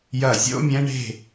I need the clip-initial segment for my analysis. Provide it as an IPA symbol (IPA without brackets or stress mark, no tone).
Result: j